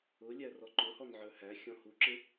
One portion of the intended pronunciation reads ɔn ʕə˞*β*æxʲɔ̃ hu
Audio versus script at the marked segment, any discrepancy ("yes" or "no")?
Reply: yes